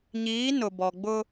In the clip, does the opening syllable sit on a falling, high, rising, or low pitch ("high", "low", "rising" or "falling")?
rising